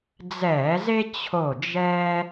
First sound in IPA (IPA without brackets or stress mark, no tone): d͡z